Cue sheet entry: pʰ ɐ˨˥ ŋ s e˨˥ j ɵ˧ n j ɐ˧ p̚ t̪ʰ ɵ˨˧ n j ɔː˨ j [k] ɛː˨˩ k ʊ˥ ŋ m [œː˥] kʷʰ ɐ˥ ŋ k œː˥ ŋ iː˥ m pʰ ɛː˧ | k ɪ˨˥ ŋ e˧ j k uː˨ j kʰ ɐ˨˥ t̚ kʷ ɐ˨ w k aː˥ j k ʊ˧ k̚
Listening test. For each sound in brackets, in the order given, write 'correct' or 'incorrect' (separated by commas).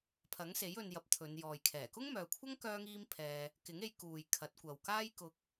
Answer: incorrect, incorrect